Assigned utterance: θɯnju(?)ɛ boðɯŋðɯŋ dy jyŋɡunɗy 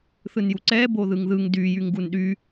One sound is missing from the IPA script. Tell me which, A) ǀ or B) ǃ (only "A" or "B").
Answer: A